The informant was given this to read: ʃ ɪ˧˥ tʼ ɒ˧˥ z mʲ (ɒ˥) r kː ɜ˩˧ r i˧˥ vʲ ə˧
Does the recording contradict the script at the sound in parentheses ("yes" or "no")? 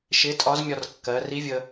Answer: yes